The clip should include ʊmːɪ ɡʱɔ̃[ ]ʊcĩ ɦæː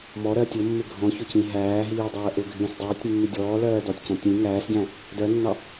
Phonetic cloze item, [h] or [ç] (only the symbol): ç